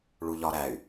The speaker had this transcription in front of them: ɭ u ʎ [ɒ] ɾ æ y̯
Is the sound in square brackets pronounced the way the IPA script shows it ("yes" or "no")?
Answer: yes